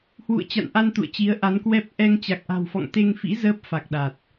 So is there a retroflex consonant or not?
no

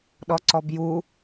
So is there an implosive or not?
yes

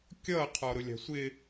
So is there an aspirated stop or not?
yes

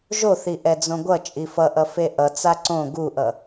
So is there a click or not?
yes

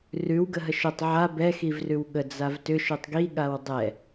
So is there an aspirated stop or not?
no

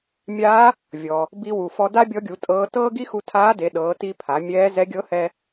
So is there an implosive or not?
yes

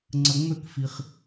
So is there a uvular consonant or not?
yes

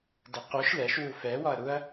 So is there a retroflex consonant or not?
no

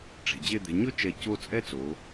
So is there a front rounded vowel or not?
no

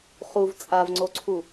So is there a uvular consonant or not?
yes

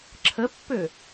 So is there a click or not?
yes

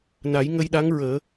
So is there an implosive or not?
yes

